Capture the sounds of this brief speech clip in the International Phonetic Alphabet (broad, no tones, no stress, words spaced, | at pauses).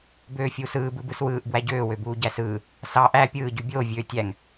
bøːfʲuːsɯː bɯbɯswɯːʔ bwæɟøː wøbuːɟæsɯː | sɑ ʔæ pʲɯː ɟybʲoː vʲøːtʲæŋ